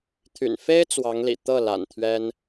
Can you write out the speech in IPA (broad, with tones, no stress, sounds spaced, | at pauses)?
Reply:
t̪ʰ y̰˨˩ n f e˥ ɪ̯ t͡s w ɑ˧˥ ŋ l ḭ˨˩ t̪ ɤ˥˩ l a̰˨˩ n t̪ʰ ɥ ɛ˥ n